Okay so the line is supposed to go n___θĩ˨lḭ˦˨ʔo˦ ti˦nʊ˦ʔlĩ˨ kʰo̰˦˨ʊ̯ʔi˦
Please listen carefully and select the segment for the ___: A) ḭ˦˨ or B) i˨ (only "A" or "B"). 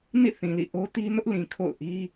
A